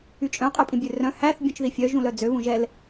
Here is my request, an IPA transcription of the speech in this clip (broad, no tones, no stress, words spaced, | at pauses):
yt͡ʃʼœ̃ qʼøpʼĩbʲørœ̃ hæθ bʲũt͡ʃðifʲœ ʒũlœd͡zø βũʒɛl